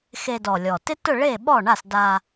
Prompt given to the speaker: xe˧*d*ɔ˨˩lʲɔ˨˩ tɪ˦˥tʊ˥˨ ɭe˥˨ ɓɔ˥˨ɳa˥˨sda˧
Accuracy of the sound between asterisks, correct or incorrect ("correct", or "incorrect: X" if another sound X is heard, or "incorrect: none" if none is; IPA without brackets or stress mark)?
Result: correct